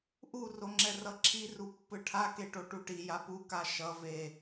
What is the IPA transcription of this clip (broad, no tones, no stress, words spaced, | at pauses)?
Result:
ʔu roŋ͡ǁɛrʌǁʰi rupːɯʈʰa keʈoʈuʈi japuka ʃʌ ve